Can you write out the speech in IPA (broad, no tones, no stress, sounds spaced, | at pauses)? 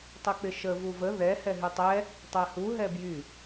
tˤ ə k͡p ɪ ʃ ə v u v ə ð ɛ h ɛ ɦ y tˤ ɛ | tˤ ɛ h u ɦ ɛ b j y